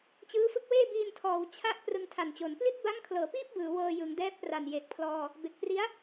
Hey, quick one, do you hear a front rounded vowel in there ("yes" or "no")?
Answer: no